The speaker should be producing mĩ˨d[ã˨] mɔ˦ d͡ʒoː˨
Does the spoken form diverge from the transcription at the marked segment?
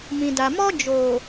yes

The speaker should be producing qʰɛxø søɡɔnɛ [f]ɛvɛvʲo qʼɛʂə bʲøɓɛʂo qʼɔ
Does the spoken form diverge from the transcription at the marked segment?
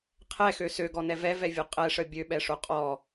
yes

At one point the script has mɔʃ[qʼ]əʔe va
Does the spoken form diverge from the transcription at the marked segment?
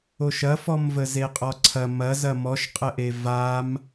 no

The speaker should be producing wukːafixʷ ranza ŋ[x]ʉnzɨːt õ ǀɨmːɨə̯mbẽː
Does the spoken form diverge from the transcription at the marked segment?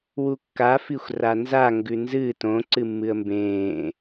yes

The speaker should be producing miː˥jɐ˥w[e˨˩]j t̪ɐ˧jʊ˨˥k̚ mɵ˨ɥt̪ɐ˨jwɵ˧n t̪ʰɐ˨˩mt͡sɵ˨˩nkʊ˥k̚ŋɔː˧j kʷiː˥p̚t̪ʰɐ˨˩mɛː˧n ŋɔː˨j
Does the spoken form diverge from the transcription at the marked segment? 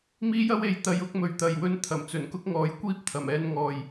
yes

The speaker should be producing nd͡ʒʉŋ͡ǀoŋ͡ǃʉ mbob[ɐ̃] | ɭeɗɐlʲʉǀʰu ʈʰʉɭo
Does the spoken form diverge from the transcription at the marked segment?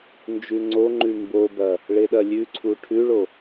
yes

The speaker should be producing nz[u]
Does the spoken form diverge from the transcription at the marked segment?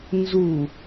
no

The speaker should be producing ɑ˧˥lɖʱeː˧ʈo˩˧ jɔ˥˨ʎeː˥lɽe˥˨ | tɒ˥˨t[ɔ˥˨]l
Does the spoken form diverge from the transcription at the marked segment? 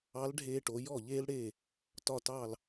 yes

